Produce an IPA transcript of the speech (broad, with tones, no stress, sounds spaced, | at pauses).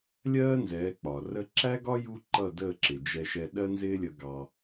lʲ ɜː˦ n z ɛː˨˦ k͡p ɒ˨ r ə˧ ǁ æ˦ ɡ ɒ˦ j u˦ ǃ ʌ˦˨ d əː˦˨ ǁ ɪ˨ d͡ʒ ɛ˧ ʃ ɛ˧ ɗ ɜ˦ n z ɪː˦ lʲ ə˧ ɡ ɑ˧